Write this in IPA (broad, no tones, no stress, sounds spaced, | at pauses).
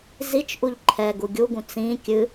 z i t͡ʃ ʔ u ʎ ǃʰ ɛ ɡ u ɡʲ u ɡ ũ t͡s ĩ kʲ ɨ